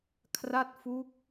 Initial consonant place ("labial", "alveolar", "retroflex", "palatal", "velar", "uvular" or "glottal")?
velar